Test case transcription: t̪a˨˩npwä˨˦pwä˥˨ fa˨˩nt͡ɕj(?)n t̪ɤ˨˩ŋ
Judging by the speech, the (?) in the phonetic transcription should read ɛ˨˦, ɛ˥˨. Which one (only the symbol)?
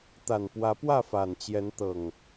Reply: ɛ˨˦